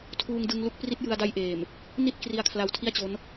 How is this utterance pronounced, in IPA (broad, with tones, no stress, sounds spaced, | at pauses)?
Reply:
tʰ uː˧ ŋ d ɯ˧ ŋ l u˦˥ k̚ p r i˦˥ t̚ j ɯ˧ a̯ d a˦˥ j ʔ eː˨˩ m | n i˥˩ t̚ k r i˧ a̯ kʰ l a˧ w tʰ i˥˩ a̯ t͡ɕ o˦˥ n